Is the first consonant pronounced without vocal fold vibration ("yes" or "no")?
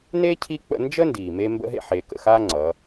no